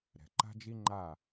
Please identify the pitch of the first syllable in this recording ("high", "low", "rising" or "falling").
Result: low